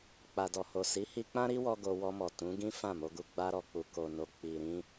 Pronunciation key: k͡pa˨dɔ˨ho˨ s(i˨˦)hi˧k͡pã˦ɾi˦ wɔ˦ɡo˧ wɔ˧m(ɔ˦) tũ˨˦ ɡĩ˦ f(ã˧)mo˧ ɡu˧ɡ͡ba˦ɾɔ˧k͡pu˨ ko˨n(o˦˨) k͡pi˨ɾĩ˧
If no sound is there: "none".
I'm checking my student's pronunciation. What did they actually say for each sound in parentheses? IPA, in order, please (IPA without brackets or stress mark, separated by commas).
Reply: i˨˦, ɔ˨, ã˦˨, o˨